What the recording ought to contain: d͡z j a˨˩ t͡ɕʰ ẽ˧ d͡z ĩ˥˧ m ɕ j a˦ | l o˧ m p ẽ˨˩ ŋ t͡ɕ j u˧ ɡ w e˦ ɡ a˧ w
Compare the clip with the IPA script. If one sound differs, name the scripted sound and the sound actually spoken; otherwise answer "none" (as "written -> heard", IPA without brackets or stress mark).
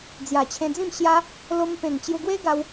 none